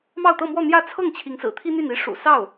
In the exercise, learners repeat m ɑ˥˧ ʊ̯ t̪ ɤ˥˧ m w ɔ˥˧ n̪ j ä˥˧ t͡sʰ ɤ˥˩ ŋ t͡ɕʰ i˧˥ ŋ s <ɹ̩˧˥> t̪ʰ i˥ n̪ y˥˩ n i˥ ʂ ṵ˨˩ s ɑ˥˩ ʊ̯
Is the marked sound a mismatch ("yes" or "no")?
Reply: yes